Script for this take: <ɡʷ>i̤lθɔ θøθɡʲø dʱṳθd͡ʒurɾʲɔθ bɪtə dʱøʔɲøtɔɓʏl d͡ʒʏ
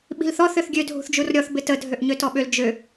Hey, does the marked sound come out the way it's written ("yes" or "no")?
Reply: no